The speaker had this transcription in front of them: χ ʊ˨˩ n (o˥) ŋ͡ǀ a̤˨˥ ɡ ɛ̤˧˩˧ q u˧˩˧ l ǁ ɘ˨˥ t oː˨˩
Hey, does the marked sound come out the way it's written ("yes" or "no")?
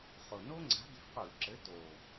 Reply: yes